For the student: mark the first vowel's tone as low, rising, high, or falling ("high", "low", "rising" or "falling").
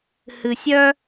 low